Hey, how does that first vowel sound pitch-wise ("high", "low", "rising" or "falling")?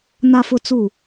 high